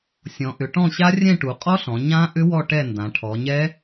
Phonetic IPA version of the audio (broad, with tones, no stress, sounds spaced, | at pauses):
sʲ ɔ̃˩˧ ʔ ʏ˩˧ ʈ ɔ̃˦˨ ɕ a˦˥ rʲ ɛ̃˦˨ ʈ u˩˧ qʼ ɔ˦˥ ɬ ɔ̃˩˧ ɲ ã˦˥ ʔ ʏ˦˥ w ɔ˦˨ ʈ ɛ˦˨ n d ã˩˧ ʈʰ ɔ˩˧ ɲ ɛ˦˥